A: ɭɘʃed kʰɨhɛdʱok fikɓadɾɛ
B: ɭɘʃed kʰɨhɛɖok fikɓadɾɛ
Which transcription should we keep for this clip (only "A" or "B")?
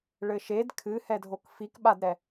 A